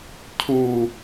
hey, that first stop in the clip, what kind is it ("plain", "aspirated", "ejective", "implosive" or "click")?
aspirated